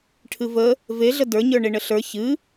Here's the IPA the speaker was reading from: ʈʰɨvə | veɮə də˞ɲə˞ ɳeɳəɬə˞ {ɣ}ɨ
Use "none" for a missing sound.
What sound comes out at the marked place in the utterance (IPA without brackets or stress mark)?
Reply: ç